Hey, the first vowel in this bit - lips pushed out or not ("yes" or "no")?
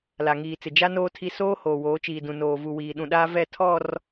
no